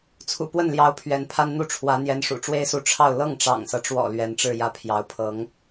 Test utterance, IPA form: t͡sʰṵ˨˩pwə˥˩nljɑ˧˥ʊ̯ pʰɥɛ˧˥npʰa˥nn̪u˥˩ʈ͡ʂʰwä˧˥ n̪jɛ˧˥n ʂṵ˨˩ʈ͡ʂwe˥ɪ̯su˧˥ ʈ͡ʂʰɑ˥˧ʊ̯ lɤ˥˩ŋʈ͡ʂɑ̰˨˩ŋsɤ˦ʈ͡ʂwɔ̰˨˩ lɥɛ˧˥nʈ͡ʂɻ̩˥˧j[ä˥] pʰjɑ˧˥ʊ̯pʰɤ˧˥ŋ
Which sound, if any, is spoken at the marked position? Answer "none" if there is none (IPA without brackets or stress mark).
ä˥˩